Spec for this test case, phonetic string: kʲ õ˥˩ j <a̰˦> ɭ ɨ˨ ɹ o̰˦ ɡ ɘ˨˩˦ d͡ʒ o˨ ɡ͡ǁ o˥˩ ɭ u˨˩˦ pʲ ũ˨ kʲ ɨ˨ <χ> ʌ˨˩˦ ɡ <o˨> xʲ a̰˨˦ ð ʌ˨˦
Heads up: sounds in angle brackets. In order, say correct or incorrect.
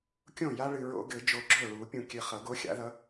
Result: incorrect: a˦, correct, incorrect: o˨˦

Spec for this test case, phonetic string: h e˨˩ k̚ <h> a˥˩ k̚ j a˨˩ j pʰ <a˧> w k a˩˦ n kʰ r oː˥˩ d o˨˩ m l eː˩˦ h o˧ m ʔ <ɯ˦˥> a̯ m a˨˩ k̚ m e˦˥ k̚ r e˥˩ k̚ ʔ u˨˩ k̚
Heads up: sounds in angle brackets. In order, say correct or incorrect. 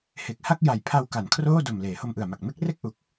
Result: correct, correct, incorrect: ɯ˨˩

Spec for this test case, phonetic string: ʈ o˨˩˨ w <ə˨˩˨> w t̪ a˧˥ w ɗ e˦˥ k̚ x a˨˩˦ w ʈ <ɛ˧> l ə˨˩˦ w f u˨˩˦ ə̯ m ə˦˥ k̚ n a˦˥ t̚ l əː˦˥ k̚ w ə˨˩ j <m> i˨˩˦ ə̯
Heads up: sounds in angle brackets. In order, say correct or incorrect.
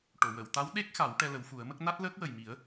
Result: correct, correct, correct

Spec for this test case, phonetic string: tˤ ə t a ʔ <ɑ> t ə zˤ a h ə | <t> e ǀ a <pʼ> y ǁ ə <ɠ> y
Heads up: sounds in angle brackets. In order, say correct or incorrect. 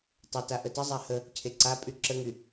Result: incorrect: ə, incorrect: cʰ, correct, incorrect: ŋ

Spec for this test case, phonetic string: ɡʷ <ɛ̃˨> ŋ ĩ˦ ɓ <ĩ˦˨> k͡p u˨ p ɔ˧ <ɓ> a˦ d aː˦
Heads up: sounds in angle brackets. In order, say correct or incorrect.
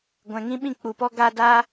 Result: correct, correct, incorrect: ɡ

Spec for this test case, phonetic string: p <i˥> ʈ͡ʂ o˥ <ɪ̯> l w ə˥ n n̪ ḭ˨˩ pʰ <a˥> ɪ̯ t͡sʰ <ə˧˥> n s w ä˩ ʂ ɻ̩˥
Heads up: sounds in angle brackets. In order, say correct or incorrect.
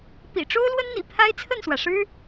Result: incorrect: ḭ˨˩, incorrect: ʊ̯, correct, incorrect: ə˥˩

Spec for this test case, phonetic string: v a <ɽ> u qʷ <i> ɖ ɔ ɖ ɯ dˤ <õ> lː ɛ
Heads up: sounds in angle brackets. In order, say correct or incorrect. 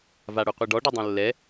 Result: correct, correct, correct

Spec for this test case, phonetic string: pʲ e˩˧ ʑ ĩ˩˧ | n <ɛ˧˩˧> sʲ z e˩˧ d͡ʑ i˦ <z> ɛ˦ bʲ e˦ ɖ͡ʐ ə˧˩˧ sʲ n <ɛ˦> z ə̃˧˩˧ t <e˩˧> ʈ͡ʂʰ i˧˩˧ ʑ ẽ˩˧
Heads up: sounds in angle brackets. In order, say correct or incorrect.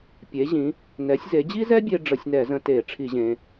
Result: incorrect: ɛ˩˧, correct, incorrect: ɛ˧˩˧, incorrect: e˧˩˧

